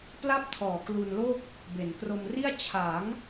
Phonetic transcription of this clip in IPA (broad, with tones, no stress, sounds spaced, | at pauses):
p l a˥˩ p̚ tʰ ɔː˨˩ k l u˧ n l o˥˩ k̚ | b e˩˦ n k r o˧ m r i˥˩ a̯ t͡ɕʰ a˩˦ ŋ